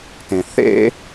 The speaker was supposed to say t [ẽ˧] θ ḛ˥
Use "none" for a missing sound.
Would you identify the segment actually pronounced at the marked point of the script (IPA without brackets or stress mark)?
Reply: ẽ˧